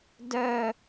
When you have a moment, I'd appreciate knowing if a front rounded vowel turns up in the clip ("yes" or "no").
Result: yes